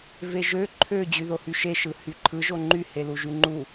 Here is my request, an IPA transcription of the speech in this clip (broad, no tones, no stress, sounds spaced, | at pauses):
v e ʒ ø ǃʰ ø d͡ʑ y ð o h y ʃ e ʃ ɯ h y ǃʰ ɯ ʒ o ŋ͡ǃ y h e l u ʒ y ŋ͡ǃ u